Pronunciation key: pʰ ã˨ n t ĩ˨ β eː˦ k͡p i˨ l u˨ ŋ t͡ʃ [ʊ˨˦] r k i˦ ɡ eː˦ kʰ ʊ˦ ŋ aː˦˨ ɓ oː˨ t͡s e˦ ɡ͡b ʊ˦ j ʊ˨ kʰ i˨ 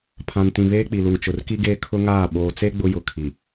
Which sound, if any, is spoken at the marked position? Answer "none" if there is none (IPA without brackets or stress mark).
ʊ˨